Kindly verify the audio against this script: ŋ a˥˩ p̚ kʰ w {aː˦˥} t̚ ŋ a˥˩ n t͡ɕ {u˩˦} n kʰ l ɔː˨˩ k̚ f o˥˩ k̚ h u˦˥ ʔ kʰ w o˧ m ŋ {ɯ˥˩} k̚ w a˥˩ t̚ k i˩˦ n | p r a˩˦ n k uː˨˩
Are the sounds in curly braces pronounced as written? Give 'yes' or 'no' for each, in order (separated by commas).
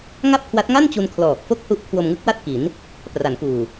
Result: no, no, no